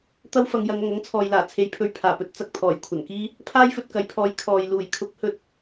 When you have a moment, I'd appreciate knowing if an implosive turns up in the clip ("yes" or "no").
no